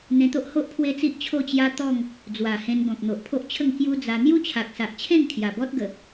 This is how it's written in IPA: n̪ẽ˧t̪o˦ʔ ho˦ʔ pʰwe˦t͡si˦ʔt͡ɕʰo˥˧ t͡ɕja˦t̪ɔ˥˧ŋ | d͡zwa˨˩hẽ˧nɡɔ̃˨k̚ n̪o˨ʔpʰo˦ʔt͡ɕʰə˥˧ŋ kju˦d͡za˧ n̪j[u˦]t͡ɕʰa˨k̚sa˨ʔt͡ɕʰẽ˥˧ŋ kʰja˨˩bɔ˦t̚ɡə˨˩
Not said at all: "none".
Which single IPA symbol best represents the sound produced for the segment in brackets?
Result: u˦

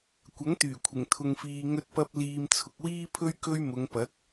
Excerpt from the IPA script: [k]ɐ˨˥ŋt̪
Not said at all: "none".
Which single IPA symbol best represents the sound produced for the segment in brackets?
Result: kʷ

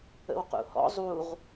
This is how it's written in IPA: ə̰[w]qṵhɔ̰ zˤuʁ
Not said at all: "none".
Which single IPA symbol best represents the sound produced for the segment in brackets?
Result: w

